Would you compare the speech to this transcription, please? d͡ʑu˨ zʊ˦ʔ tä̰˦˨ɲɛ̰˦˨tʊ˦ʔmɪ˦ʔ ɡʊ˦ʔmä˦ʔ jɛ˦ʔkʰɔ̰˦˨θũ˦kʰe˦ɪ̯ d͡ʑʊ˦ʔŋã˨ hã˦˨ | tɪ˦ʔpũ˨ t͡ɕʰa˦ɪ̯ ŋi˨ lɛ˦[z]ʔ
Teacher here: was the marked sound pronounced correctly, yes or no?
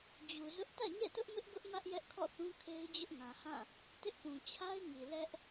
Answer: no